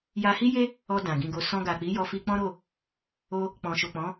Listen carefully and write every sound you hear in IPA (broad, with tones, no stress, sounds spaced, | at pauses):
j a˧ h i˦ j e˦ | ɔ˧ d ã˨ ɡ ĩ˧ ɡ o˧ s ɔ̃˧ ɡ a˨ k͡p i˨˦ j ɔ˧ f i˧ k͡p ɔ̃˦ ɾ o˦˨ | o˧ | k͡p ɔ̃˨ ʃ o˨ k͡p ɔ̃˨˦